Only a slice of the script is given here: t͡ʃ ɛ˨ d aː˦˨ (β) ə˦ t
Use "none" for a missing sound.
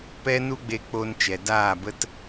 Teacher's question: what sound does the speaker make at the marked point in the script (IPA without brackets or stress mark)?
b